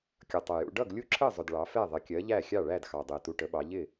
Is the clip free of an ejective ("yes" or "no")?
yes